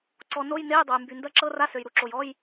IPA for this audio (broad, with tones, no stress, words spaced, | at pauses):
ǀɔ˩ no˧˥˧jne˧˥˧jdˤo˩j mby˩ ndɐ˧˥˧ǁɤ˧˥˧ra˧˥˧sø˩j ɾu˩ǁo˩jɔ˧˥˧j